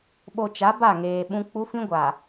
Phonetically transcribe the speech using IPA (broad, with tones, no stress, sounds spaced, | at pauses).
ɓ o˨ t͡ʃ a˨˦ b a˦˨ ŋ eː˨ ɓ ũ˦ k͡p u˦ f ĩ˦ ɡʷ a˨